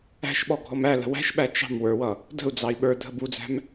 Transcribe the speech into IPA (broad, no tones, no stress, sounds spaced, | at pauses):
æ̤ ʃ ɓ ɔ ɡʱ ɔ m æ l ə̤ w æ̤ ʃ ɓ æ t͡ʃ ɑ̤ m w ə˞ w ʌ | d ə̤ u̯ d͡z ɑ i̯ ɓ ə˞ dʱ ə b u d͡z æ̤ m